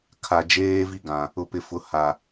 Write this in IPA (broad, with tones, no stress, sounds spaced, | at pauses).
kʰ a˨ d͡ʒ eː˦ v i˦ ɡ ã˨ | ʊ˨ p ɪ˨ f ʊ˨˦ h a˨